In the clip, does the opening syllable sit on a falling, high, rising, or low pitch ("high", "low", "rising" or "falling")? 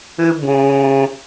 high